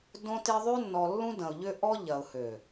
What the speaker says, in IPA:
d õ˦ t e˦ ðˤ ø˦ nː ɔ˨ lː ũ˦ d ɐ̃˨ ʊ̯ ʎ ʏ˦ ʔ ɔ˦ ʎ ɐ˨ ʊ̯ h ø˨

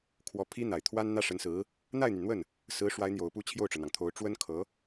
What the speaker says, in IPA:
kʰ w ɔ˧˥ pʰ i˥ n̪ a˨˩ ɪ̯ t̪ʰ w a˥ n n̪ ä˥ ʂ ə˧˥ n s ɹ̩˧˥ | n̪ a˥˩ ɪ̯ n̪ y˩ n n̪ w ə˥˩ n | s ɹ̩˧˥ ʂ w a˧˥ ɪ̯ n̪ j o˨˩ ʊ̯ p u˥˧ t͡ɕʰ j o˥˩ ʊ̯ ʈ͡ʂ ɤ˩ n̪ ɑ˩ ŋ t̪ʰ o˧˥ ʊ̯ ʈ͡ʂ w ə˥ n kʰ ɤ˧˥

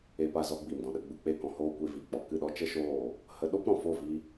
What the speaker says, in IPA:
e˧ p a˧ z ɔ˧ ɡ͡b i˨ m d ɔ̃˨ ɗ ə˧ ɡ͡b u˨ k͡p e˦˨ k ɔ̃˧ h oː˧ kʷ e˧ v i˨ k͡p ɔ˨ k ɨ˦˨ ɗ ɔ˦ t͡ʃ ə˦ ʃ oː˦˨ | h ə˧ ɗ o˦ p ɾ ɔ̃˨ f o˦˨ v i˧

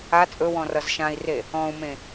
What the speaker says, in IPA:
a t͡sʼ ɵ w ɔ̃ r ʌ z ʃ ã i̯ r e | ɔ̃ u̯ m ẽ

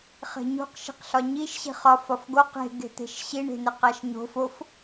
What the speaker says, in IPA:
χ e̤ ɲ ṳ q ʃ i̤ q ɬ ɒ ɲ i ʃ ɕ i̤ χ ɒ f ɒ f ɡ o q e̤ ɡ e̤ t̪ e̤ ʃ ɕ i ɳ e̤ n e q æ ʃ ɲ o̤ f o f

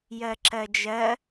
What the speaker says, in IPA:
j ɜ ǁ ɜ d͡ʒ ɜ

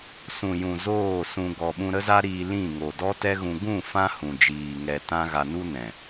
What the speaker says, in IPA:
s ũ˨ j ũ˨ z oː˦˨ s ũ˧ ɡ ɔ˨ ɓ ũ˧ ɾ ə˦ z a˦ ɾ iː˧ l ĩ˦˨ ŋ o˨ d ɔ˦ t ɛ˦ ɣ ũ˧ ɡ ũ˦˨ f ã˦ h ũ˨ d͡ʒ iː˨ ŋ ɛ˧ t ã˦ ɣ a˧ n u˦ n ɛ̃˨

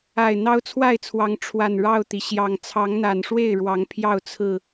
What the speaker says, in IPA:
a˨˩ ɪ̯ n̪ ɑ˦ ʊ̯ t͡sʰ w a˥˨ ɪ̯ t͡sʰ w ɑ˨˦ ŋ ʈ͡ʂʰ w a˨˩ n ɻ ɑ˥˨ ʊ̯ t̪ i˩ ɕ j ɑ˨˩ ŋ t͡sʰ ɑ˨˦ ŋ n̪ a˨˩ n ʂ w e˥˨ ɪ̯ ɻ w ɑ˨˦ ŋ pʰ j ɑ˥˨ ʊ̯ t͡sʰ ɹ̩˥˨

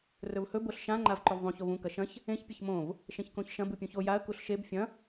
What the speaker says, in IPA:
r ɵ v h ɵ b o ɬ ʃ ã ŋ͡ǃ a v ǃ o v ðˤ ũ ç o v ũ k ɐ ʃ ɐ̃ ç | ẽ ç pʲ ɐ ç m õ v | ʃ ẽ ç k õ ç ʃ ɐ̃ b u pʲ ũ ç o j a ə̯ k u ɬ ʃ e b fʲ ɐ̃

